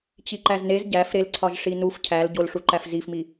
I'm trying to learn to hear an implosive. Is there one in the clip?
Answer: no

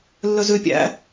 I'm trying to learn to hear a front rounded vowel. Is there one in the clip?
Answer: yes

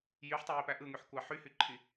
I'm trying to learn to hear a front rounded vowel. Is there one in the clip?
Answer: yes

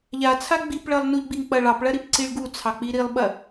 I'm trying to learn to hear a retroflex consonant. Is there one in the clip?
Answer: yes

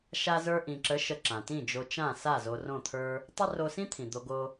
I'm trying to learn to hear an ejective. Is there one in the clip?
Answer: no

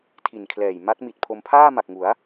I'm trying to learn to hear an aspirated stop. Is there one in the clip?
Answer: yes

